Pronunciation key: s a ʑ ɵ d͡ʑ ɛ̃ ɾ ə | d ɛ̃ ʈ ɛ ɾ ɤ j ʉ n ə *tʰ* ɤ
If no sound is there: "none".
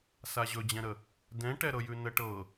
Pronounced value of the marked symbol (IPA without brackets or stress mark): ʈ